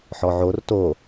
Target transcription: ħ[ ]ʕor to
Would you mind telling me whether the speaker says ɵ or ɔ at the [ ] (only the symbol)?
ɔ